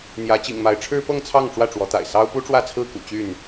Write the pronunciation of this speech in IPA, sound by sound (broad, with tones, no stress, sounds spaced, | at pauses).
n̪ j ä˨˦ t͡ɕ ḭ˨˩ ŋ m a˨˦ ɪ̯ ʈ͡ʂʰ ɻ̩˦ p ɤ˥˨ ŋ t͡sʰ ɑ˥˨ ŋ ʈ͡ʂ w ä˥˨ ʈ͡ʂ w ɔ˨˦ t̪ a̰˨˩ ɪ̯ s ɑ˦ ʊ̯ p u˦ ʈ͡ʂ w ä˥˨ t͡sʰ ɹ̩˥˨ k ṵ˨˩ t͡ɕ y˥˨ n